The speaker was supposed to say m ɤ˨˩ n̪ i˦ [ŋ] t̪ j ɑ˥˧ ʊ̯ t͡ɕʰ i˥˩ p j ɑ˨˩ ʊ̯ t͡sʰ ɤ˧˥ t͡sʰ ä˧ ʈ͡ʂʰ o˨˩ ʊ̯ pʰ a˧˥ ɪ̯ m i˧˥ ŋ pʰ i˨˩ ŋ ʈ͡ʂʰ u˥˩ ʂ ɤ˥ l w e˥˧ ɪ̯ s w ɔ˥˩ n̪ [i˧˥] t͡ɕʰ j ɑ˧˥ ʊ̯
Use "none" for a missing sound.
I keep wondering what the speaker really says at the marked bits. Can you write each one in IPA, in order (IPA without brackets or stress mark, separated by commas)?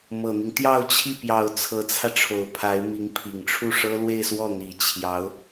ŋ, i˨˩